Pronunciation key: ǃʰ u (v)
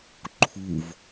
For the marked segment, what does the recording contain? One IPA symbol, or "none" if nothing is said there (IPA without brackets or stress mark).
v